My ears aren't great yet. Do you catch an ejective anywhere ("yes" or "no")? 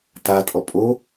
yes